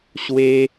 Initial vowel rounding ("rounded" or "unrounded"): unrounded